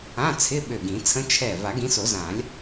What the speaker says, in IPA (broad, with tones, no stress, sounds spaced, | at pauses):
ã˧˥˧ t͡sʰ ɪ˧˥˧ ɓ ø˧˩ ɡ ĩ˨˩˦ t͡sʰ ə̃˦˥ t͡ʃʰ ɛ˧˩ v a˨˩˦ ɡ ĩ˨˦ s o˨˩˦ z ã˨˩˦ lʲ